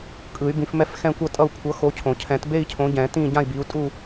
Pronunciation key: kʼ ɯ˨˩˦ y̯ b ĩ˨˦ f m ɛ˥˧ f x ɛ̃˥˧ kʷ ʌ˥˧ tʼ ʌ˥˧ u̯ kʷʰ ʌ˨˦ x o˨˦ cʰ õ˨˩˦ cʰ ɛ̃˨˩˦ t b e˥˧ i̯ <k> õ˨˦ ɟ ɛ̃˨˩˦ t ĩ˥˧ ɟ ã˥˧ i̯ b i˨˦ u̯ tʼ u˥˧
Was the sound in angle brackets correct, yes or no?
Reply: no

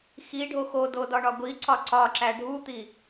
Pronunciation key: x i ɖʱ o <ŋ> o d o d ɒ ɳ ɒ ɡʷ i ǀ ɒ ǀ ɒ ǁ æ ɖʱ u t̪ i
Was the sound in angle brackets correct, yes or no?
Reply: no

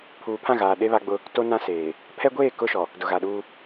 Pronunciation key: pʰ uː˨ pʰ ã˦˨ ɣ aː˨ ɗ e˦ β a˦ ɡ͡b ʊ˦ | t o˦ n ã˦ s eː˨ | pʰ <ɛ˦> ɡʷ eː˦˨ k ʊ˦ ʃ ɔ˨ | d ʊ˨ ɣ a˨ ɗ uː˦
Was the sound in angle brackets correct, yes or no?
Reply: yes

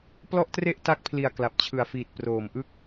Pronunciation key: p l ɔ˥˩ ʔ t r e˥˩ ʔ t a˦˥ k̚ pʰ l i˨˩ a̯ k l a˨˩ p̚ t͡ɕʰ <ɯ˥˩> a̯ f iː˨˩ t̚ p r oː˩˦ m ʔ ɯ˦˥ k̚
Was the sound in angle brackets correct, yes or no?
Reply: no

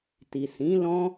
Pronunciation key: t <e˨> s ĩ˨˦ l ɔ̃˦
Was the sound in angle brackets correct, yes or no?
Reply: no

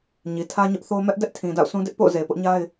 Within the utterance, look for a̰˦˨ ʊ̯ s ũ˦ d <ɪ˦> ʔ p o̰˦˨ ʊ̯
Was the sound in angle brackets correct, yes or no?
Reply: yes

